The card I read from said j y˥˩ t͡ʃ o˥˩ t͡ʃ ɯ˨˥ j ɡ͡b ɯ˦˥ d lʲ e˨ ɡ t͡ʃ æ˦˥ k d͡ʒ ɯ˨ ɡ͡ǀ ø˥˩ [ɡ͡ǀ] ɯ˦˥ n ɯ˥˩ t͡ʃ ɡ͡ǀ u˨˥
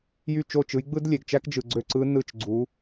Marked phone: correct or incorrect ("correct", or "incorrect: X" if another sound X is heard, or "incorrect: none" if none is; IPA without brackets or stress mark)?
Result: incorrect: ǀ